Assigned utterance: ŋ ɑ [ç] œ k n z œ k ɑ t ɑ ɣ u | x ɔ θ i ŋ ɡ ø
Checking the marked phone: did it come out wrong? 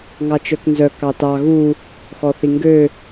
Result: yes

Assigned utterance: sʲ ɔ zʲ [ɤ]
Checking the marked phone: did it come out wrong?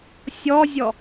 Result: yes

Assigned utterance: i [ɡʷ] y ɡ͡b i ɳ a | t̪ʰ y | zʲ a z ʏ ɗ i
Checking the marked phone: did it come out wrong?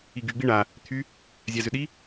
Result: yes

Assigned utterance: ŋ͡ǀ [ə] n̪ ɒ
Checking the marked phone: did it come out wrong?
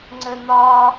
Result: no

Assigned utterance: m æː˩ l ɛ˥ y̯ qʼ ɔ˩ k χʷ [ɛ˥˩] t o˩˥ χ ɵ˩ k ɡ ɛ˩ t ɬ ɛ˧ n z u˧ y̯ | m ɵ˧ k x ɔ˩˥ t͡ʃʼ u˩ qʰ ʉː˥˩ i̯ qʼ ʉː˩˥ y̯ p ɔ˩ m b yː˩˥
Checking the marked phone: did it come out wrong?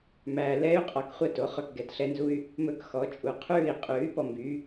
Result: no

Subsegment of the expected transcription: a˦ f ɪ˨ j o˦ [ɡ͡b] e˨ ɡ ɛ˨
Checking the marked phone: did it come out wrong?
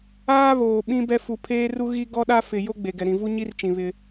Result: no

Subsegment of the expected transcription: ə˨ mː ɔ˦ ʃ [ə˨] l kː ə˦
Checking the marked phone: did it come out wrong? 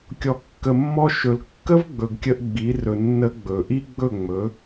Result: yes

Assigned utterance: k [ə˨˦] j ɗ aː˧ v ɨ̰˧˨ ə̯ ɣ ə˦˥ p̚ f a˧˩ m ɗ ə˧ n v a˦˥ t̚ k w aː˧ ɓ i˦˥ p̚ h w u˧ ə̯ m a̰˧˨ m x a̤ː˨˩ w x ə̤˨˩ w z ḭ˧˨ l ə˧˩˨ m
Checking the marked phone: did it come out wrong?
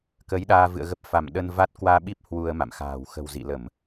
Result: no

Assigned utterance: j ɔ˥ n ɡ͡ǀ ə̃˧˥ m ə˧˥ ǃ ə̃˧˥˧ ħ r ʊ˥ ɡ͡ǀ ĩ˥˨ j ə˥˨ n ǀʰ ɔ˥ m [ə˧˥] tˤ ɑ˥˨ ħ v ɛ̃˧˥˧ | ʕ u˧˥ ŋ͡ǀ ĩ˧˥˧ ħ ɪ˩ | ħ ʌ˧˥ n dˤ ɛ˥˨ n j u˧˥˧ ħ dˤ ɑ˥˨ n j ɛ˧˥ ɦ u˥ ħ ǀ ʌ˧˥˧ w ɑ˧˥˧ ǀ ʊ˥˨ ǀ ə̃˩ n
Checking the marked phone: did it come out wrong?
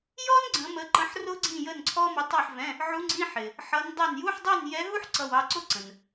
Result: no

